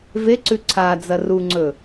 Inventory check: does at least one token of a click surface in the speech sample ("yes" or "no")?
yes